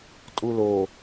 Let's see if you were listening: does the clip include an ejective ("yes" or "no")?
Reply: yes